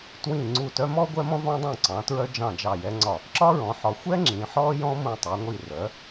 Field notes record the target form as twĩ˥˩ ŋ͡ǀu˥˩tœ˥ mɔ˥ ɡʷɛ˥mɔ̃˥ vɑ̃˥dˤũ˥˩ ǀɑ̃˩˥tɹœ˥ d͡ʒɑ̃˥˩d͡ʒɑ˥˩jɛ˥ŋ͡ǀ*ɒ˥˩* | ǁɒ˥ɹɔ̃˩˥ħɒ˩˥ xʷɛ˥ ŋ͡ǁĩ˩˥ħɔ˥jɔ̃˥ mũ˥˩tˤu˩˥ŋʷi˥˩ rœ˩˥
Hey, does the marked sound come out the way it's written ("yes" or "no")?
yes